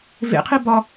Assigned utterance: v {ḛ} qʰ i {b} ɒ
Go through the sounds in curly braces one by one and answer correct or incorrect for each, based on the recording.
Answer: correct, correct

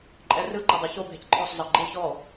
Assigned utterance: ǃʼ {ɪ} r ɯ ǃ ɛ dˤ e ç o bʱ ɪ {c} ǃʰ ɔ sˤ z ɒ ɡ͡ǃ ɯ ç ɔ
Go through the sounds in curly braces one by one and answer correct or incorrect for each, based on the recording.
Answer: incorrect, correct

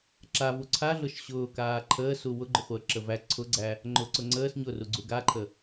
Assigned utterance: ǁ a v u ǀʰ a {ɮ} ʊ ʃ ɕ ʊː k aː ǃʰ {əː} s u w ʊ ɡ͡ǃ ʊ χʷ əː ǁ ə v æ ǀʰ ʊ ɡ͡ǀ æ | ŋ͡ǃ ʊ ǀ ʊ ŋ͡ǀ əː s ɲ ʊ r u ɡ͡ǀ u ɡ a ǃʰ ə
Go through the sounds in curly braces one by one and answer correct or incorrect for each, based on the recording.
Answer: correct, correct

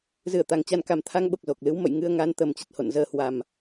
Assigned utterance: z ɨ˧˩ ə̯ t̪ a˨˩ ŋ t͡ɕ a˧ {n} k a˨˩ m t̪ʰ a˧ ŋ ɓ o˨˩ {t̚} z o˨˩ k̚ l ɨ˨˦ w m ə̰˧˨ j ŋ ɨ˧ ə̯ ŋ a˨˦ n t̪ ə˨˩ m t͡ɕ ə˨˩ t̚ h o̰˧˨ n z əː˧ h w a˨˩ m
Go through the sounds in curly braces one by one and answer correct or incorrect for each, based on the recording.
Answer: correct, incorrect

